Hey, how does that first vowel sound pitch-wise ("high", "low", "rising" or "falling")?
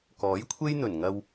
rising